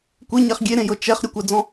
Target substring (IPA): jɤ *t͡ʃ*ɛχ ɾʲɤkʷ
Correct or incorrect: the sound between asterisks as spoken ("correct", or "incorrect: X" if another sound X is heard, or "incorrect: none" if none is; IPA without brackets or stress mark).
correct